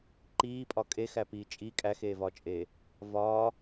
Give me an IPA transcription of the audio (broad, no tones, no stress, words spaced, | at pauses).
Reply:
ǃiːpʼɒ kʼexæpiː t͡ʃʼi kʼæxeːvɒːt͡ʃʼeː | vɒː